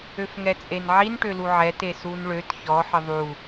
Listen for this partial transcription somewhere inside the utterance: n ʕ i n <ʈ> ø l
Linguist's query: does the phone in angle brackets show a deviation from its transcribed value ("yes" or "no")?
no